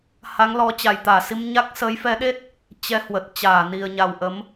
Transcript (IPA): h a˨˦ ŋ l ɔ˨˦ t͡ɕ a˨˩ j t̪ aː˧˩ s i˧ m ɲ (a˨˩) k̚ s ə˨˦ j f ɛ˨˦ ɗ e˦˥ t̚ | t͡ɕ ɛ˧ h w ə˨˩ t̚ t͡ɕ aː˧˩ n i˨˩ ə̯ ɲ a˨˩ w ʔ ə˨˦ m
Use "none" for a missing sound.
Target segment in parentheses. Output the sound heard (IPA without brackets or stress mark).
a˦˥